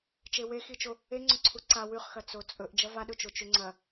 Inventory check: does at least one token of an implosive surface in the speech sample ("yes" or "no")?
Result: yes